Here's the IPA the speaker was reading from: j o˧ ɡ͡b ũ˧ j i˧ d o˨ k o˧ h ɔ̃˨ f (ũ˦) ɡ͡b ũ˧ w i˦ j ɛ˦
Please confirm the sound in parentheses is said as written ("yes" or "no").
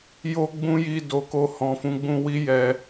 no